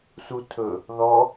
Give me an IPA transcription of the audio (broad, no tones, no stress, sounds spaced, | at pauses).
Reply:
s u tʰ ɵ | ð ɔ